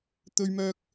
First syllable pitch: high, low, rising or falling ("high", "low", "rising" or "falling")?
high